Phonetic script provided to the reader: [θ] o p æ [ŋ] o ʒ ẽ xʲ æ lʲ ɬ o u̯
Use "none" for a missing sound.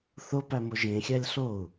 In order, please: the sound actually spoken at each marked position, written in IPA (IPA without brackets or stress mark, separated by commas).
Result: θ, m